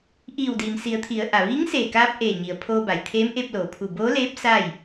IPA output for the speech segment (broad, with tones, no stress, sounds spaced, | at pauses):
ʔ iː˧˩ w d iː˩ m s i˩˧ ə̯ t̪ʰ i˩˧ ə̯ ʔ a˩ ʋ iː˧˥ ŋ s eː˧˩ k aː˧ p̚ ʔ eː˧˩ ɲ i˩ ə̯ pʰ oː˧ b a˩ j t̪ʰ eː˧˥ m ʔ e˧ p̚ l oː˩ pʰ u˧˩ b oː˧˥ l eː˧˥ p̚ s a˥˨ j